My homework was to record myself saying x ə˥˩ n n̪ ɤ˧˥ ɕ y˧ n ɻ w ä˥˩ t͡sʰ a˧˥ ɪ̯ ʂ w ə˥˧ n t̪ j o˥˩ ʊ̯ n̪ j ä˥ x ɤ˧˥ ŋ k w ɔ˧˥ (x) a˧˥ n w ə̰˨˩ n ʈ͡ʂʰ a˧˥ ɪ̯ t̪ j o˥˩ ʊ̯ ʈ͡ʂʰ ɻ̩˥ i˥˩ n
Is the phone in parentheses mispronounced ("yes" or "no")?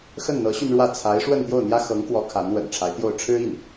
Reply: yes